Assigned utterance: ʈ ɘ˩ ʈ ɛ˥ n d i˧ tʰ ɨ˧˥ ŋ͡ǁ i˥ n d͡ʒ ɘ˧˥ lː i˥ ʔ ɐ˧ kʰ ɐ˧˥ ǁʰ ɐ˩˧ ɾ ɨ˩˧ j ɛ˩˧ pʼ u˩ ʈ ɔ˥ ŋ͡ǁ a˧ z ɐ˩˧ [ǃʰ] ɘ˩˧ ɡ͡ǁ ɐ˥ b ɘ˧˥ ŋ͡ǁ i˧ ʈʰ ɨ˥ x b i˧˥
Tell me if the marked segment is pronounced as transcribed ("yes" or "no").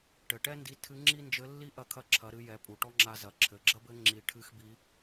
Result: no